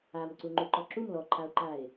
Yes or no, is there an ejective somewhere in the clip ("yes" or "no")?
no